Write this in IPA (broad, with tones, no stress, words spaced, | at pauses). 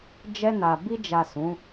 d͡ʒɛ˧na˨ bi˧d͡ʒa˨ sũ˨˦